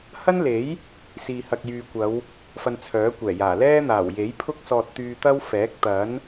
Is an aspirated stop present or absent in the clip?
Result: present